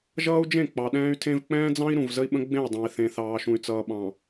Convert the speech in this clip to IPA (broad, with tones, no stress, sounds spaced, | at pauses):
ʒ ʌː˦ u̯ d͡ʒ ẽ˦˨ k͡p ɑ˨ ɗ ɛ̃ː˦ y̯ tʰ ẽ˦ v k͡p ɛ̃ː˦ d͡z ɑ̃˦ i̯ ɾ ũ˨ v z ə˦ i̯ ɓ ə̃˦ ɡ͡b ẽ˦˨ y̯ dˤ ɑ̃˨ i̯ θ ẽ˨ θ ɑː˨ ʃ ũ˨ y̯ t͡s ʌː˨ ɓ ɑ̃˨